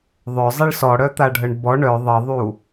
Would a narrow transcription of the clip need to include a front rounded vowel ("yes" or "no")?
yes